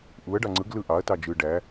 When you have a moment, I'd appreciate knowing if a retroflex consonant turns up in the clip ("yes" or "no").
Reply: yes